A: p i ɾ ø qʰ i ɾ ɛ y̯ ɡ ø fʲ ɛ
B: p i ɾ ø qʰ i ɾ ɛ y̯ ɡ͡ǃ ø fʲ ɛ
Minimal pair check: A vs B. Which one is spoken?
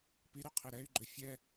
B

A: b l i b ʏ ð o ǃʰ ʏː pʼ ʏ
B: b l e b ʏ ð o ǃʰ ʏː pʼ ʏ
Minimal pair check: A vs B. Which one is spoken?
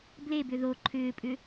B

